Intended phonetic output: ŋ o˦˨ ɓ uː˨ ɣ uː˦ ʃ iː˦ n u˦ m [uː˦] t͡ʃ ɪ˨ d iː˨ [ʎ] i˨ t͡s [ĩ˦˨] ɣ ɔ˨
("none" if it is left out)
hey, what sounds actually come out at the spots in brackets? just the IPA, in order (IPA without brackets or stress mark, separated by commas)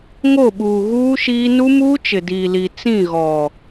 uː˦, l, ĩ˦˨